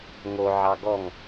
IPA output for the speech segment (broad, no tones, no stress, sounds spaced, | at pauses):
ŋ o ʕ ɑ ɡ ɔ ŋ